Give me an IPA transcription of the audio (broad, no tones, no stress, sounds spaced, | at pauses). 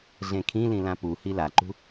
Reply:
ɮ ẽ kʰ ĩ l ĩ l ã p u h i l a ǃ ṳ